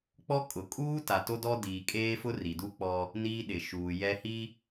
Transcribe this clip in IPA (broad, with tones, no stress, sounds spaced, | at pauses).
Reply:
k͡p ɔ˦ kʼ ʊ˨ kʼ uː˦ t a˨ t o˦ d ɔ˦ d iː˨ kʼ eː˦ f ʊ˦ r i˨ d u˦ k͡p ɔ˦ | n iː˦ ɗ ɪ˨ ʃ uː˨ j ɛ˦ h i˦